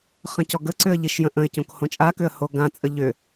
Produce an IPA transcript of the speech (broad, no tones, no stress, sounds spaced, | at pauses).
χ ə̃ c ɔ ɡ ə ǀ ʏ ə̯ ʎ i ʃ j ə̃ ʔ ə̃ ɪ̯ c õ k h õ t͡ʃʼ a k ʏ ə̯ h o ɡ ã t͡sʼ ə ʎ ʏ